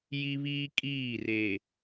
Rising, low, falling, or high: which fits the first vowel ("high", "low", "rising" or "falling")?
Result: high